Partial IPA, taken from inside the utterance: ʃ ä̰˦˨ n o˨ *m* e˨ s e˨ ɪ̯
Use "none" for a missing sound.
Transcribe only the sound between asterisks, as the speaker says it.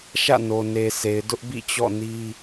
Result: n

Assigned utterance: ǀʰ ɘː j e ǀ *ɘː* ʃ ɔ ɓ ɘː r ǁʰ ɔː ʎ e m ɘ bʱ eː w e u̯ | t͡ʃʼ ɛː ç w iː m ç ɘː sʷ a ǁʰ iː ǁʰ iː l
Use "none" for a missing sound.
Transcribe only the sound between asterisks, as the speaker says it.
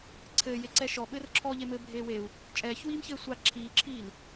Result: ɛː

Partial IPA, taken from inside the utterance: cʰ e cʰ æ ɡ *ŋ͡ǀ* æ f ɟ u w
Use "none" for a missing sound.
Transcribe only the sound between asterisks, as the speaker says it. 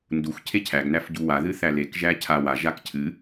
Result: n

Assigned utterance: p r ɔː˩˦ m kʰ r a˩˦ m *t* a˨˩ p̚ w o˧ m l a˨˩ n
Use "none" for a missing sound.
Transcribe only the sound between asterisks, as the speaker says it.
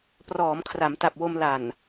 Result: t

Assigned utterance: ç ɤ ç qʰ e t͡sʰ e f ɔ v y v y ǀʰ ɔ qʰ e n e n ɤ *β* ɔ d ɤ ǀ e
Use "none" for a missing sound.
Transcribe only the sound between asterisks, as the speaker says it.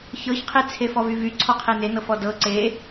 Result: f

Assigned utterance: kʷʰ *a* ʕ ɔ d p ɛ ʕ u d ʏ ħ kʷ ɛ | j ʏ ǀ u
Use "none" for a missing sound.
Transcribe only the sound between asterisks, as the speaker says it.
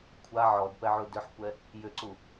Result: a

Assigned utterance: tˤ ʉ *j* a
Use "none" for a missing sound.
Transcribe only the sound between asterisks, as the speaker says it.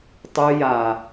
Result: j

